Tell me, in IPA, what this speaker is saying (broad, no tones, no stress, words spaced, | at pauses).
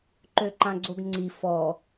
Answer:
ǃøǃãɡ͡ǀoɡŋ͡ǀi fɔ